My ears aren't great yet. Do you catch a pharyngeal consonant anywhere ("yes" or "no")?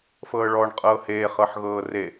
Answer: yes